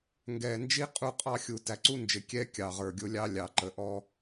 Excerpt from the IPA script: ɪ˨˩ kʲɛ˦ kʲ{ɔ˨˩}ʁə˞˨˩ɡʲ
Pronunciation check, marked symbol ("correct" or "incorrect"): incorrect